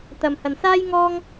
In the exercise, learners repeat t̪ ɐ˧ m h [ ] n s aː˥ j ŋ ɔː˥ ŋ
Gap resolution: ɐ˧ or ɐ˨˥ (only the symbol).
ɐ˧